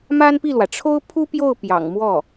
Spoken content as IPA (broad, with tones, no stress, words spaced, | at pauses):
ma˥npi˥˩lwä˩ ʈ͡ʂʰo˥ʊ̯pʰu˥pjo˥˩ʊ̯ pjɑ̰˨˩ŋmwɔ˥˩